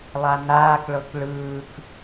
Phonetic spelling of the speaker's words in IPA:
lˠ a n aː k ɭ ɤ k ɭ ɯː k

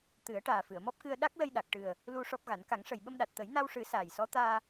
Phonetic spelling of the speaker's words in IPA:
t̪ ɨ˨˩˦ ə̯ ʈ aː˨˩ f ɨ˨˩˨ ə̯ m ɔ˦˥ p̚ k ɨ˧ ə̯ ɗ a˦˥ k̚ l ə˧ j ɗ a˨˩ k̚ ʈ ɨ˨˩ ə̯ | l u˧ ʂ ɔ˦˥ p̚ ɣ a˨˩˦ n k a˨˩˦ ŋ ʂ ə˨˩ j ɓ ə˧ m ɗ a˨˩ t̚ t̪ ə˨˩˦ j n a˧ w ʂ ɨ˨˩˦ s aː˨˩ j s ɔ˧˥ t̪ aː˧

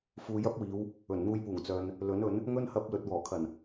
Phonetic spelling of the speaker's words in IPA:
f uː˨ j ɐ˥ p̚ w iː˨˧ w | ɵ˨˩ n n̪ uː˧ j p uː˨˩ ŋ t͡s œː˨ n | l ɵ˨˥ n ɵ˨˥ n | ŋ ɵ˥ n h ɐ˧ p̚ l ɵ˨ t̚ w ɔː˨˩ kʰ ɐ˨˩ n

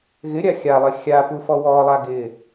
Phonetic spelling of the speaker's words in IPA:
ɣ ɪ ɾʲ a xʲ a lˠ ɪ xʲ a p u f ɔ w ɔ lˠ a ɡ ɪ

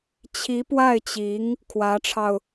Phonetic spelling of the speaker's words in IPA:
t͡ɕʰ i˧˥ p w a˥˩ ɪ̯ t͡ɕ i˧˥ ŋ | kʰ w ä˧˥ ʈ͡ʂʰ ɑ˧ ʊ̯

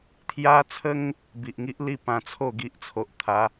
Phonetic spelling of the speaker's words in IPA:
t̪ʰ j a˦ t͡sʰ ə˦ ŋ | b i˨ ʔ ŋ i˦ ʔ l i˥˧ p ã˧ t͡sʰ o˥˧ ɡ i˦ ʔ t͡sʰ o˨ ʔ t̪ʰ a˨˦

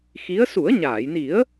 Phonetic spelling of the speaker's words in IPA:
x i˧˥ ə̯ s u˨˩˦ ə̯ ɲ aː˨˩˨ j n i˨˩˦ ə̯

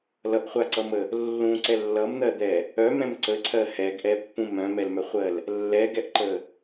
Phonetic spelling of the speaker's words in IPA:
l ʌ ʔ χʷ a ǀ ʌ m ə | lː ũ ǀ ɛ lː ʌ m n̪ ɜ d̪ ɛ | œ m ɛ̃ m ǀ ə ǀʰ ɜ h ɛ ɡ ʔ ɛ pː ũ m œ̃ m ɛ l m œ χʷ ɜ l | lː ɛ ɡ ɛ ʔ ǃ ə

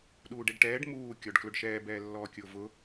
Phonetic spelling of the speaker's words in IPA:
ɗ uː ɖ e ɖ ʈ ɛː ɖ m uː kʲ ɔ ɖ k l ʊ ɖ ʃ ɛː b ɛː lː ɔː kʲ ʊː v ʊ

